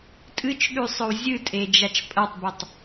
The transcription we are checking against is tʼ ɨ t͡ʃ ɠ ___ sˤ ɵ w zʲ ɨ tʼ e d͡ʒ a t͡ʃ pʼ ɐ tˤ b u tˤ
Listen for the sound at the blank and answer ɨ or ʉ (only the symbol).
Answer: ʉ